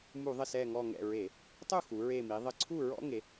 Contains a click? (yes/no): yes